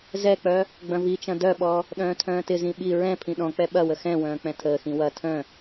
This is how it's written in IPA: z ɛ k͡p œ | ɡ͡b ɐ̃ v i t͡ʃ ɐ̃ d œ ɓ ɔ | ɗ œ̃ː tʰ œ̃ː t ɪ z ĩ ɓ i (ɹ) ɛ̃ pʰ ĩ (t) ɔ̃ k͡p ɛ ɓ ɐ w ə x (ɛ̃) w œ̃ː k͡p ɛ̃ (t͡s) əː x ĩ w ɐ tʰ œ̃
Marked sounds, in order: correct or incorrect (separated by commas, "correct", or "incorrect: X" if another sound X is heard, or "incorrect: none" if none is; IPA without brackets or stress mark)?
correct, incorrect: ɗ, correct, incorrect: tʰ